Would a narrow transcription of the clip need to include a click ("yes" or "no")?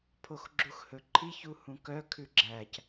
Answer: yes